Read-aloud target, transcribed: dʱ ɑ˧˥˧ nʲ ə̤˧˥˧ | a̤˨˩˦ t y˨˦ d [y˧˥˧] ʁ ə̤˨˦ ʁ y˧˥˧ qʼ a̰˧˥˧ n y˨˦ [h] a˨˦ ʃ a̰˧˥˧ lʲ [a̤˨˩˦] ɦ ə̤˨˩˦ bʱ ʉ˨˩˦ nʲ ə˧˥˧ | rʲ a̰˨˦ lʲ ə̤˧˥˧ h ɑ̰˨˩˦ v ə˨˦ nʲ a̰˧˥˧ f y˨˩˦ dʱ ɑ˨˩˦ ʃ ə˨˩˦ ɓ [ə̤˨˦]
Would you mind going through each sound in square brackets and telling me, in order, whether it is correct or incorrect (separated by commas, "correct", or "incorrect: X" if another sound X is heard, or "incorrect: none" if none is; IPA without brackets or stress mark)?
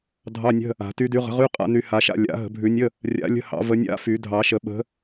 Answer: incorrect: y˨˦, correct, incorrect: a̰˨˩˦, correct